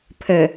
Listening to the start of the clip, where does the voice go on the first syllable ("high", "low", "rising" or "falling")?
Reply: low